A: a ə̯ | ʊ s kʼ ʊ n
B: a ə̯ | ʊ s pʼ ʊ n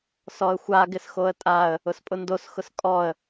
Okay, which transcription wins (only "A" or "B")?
B